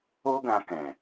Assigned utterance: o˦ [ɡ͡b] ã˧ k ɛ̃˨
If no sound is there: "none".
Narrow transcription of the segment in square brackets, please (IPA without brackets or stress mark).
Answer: ɡ